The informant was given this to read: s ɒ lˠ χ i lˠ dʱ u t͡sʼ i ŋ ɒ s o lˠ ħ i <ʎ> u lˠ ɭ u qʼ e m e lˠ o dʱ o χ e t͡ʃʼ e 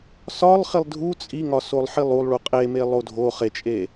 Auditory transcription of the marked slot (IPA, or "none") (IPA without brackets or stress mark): lˠ